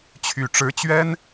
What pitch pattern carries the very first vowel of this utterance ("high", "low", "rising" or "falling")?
low